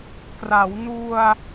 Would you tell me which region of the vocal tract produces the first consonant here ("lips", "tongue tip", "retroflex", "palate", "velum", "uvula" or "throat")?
velum